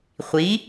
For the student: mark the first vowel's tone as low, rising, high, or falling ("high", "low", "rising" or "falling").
rising